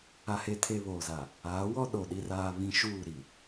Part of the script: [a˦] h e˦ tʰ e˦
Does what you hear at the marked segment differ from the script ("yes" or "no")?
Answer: no